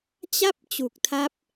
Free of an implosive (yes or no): yes